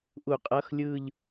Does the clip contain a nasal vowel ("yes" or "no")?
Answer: no